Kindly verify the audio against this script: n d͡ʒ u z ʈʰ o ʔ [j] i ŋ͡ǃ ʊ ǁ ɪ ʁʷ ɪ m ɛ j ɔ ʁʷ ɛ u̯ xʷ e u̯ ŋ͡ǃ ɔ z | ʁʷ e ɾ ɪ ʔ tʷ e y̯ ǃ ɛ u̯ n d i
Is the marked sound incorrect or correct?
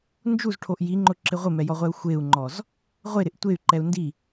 correct